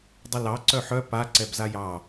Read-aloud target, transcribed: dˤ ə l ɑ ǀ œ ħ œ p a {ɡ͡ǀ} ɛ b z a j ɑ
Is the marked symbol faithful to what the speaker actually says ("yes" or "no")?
no